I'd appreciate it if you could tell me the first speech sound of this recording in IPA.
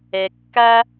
ɛ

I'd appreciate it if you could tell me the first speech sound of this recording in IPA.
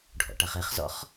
ɖʱ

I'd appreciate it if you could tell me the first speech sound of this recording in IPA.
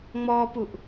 ŋ͡m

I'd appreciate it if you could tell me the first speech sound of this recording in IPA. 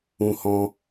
ũ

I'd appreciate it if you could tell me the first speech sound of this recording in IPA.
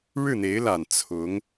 ɻ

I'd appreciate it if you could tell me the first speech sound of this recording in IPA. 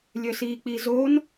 lʲ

